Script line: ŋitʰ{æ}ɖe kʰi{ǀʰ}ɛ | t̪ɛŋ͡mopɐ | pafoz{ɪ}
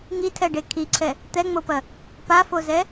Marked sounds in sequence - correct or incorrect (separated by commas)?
incorrect, correct, incorrect